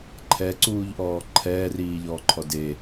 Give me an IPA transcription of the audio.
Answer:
ǃʰɛǀuːʎʔɔː ǃʰɛːriːʎɔːǃʰɔ de

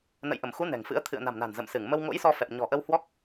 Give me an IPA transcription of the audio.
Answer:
nə̰˧˨jʔə˧˩mxu˨˦ nɛ̤˨˩ŋfɨ̰˧˥ə̯ t̪ʰɨ̰˧˨ə̯na̤˨˩mna̤˨˩n zə̰˧˨msɨ˧˩ŋ mə˧wŋo̰˧˥jsɔ˧fɛ˨˩p̚ ɲɔ̤˨˩ʔə˧w hwɔ˦˥k̚

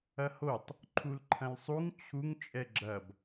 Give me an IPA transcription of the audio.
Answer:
ɐhotˤ | ǃʰulǃʰɐ̃lsˤuŋ t͡ɕʰuŋ t͡ʃʼɛɡ͡ǁɐb

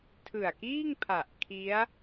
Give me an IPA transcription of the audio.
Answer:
tʰɯ˨˩a̯kiː˥˩ŋpʰa˨˩ʔ kʰi˦˥a̯

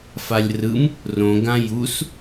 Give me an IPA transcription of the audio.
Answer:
falʲrɯm | rõɡã jus

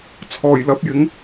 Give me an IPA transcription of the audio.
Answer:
t͡sʰɔː˨˩jlɐ˨˥p̚jɪ˨˥ŋ

